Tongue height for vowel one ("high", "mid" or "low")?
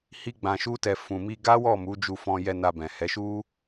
high